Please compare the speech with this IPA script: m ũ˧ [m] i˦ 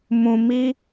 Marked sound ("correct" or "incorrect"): correct